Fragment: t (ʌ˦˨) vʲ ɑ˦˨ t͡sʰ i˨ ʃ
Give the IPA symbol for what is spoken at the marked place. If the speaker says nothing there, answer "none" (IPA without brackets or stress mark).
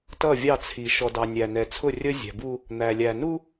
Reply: ʌ˦˨